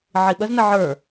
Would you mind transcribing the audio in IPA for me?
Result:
ʕ i ɓ ə z n ə ʕ ə˞

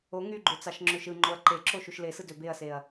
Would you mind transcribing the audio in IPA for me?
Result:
o ŋ y ɡ͡ǃ ø t͡s ɑ ʃ ŋ͡ǁ ø ʃ ɯ ŋ͡ǃ o ɐ̯ ǃ e ǁ o ʃ u ʃ l e s ɯ d ø b e ɐ̯ s e ɐ̯

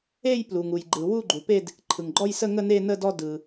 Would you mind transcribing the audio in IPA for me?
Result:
e˥˧ j p l u˩ ŋ u˩ j ɡ͡ǃ ɯ˩ w u˥˧ ɡ͡ǃ u˩ p e˥˧ d | ǃʰ ɯ˩ ŋ ɡ͡ǃ ɔ˥˧ j s ə˥˧ ŋ ə˥˧ n e˥˧ n ə˥˧ d ɔ˥˧ d ɯ˩

